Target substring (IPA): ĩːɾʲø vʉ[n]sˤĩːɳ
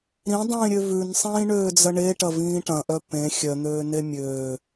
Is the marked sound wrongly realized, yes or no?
no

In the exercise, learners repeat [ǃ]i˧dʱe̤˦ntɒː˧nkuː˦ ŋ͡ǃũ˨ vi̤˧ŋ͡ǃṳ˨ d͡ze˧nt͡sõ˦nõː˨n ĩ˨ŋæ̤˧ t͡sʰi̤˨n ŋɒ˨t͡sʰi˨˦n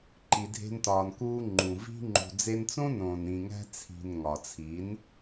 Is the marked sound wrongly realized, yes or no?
no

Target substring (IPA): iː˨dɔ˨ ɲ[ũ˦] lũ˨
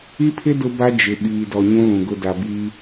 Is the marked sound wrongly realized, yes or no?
no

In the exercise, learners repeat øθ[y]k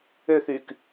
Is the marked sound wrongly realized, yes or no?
no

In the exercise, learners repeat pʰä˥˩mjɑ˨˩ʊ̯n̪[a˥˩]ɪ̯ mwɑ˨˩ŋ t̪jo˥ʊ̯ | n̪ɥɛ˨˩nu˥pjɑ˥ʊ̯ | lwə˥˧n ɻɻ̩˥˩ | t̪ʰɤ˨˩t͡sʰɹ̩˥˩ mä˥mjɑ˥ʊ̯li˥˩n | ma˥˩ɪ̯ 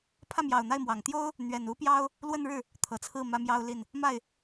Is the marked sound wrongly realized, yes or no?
no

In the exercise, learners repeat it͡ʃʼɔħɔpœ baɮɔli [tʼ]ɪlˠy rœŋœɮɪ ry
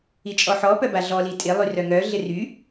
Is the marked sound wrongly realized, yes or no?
no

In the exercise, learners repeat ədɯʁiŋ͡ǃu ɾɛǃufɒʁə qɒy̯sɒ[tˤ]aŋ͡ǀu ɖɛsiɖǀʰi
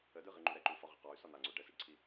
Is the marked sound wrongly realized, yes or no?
yes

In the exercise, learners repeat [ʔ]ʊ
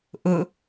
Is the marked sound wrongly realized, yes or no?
no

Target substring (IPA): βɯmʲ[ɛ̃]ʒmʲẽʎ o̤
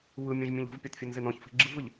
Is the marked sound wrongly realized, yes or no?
no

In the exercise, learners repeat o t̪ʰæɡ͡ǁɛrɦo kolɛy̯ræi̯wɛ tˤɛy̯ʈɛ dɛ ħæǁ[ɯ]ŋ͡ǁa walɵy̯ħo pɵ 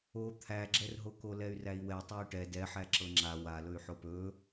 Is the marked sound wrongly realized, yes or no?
yes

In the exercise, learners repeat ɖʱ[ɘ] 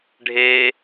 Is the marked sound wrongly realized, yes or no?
yes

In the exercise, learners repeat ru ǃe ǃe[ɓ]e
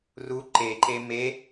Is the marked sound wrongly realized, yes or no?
yes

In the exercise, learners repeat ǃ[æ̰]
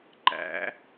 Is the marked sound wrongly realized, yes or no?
no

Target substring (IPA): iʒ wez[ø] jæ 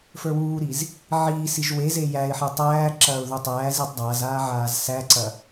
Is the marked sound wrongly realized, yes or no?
yes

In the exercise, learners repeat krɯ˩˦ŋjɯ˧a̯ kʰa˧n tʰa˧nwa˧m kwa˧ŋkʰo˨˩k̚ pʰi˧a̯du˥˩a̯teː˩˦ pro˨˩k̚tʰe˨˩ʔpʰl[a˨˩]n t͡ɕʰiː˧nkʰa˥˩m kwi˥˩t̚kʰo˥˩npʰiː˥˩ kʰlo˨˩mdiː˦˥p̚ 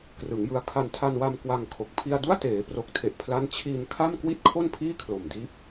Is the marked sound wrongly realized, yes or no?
yes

